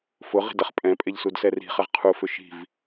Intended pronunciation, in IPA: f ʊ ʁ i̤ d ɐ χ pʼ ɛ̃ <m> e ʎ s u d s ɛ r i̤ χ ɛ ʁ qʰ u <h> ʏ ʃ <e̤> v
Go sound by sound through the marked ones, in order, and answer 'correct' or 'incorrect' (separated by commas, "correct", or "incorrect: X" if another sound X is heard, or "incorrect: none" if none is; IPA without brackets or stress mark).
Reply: incorrect: pʼ, incorrect: f, incorrect: i̤